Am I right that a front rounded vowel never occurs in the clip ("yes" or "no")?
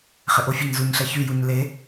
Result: no